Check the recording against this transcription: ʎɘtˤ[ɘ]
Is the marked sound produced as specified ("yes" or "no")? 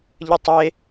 no